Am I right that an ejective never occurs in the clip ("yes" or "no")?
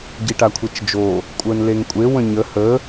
no